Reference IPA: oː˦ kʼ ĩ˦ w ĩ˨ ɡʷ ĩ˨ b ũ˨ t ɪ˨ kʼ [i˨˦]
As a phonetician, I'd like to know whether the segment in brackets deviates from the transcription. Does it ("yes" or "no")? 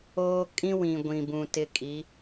no